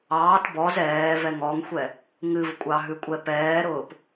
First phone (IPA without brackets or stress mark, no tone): ɑː